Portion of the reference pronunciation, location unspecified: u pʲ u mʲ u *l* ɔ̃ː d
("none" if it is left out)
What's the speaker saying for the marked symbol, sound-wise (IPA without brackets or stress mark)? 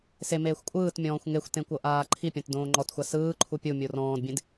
r